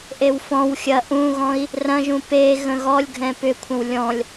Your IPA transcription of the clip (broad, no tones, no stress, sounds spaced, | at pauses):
ʔ e w f ɔ̃ w xʲ ɐ ʔ ũ ɣ ɔ̃ i̯ | r ɐ̃ ʒ ũ p e ɣ ə̃ ɣ ɔ lʲ ɡʱ ɛ̃ p ʏ kʷʰ ə̃ w lʲ ɔ̃ lʲ